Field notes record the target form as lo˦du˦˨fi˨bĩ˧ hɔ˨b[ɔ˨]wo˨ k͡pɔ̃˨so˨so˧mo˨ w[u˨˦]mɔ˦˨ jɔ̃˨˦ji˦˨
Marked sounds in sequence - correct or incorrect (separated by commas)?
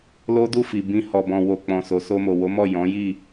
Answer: incorrect, incorrect